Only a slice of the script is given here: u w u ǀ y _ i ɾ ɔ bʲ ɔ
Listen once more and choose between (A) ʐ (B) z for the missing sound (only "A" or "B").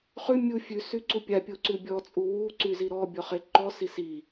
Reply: B